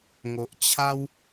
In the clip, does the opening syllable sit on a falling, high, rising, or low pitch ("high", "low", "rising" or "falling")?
low